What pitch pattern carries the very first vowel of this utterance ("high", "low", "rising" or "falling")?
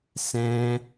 high